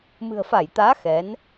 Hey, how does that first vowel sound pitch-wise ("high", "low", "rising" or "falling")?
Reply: low